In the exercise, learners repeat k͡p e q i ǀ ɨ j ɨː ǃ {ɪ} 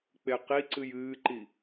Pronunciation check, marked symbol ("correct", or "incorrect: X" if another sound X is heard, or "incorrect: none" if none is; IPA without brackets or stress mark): incorrect: i